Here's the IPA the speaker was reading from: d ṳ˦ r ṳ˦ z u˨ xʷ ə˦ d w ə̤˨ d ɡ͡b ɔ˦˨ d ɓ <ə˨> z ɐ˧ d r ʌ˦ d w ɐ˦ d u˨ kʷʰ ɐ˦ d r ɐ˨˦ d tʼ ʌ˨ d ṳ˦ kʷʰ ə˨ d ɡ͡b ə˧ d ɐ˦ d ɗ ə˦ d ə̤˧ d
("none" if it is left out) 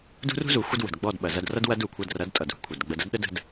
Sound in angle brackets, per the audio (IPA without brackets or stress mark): ɐ˨